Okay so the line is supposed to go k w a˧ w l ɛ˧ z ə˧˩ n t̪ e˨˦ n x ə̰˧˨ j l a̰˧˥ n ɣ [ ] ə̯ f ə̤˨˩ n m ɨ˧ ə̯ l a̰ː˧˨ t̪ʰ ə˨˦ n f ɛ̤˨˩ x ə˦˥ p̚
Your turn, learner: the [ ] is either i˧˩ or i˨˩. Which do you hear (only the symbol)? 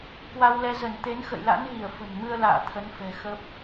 i˧˩